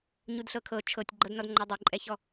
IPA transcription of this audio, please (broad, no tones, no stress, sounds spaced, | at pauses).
ɲ u d ɬ ɤ kʰ ɤ t͡ʃʰ ɤ tʲ ɡ͡ǃ ɤ d n ɔ d ŋ͡ǃ ɤ dˤ e ǃʼ ɛ ç ɔ